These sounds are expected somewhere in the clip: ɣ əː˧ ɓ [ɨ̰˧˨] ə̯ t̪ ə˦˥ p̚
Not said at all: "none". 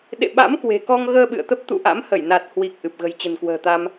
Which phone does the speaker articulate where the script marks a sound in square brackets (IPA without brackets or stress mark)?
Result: ɨ̰˧˨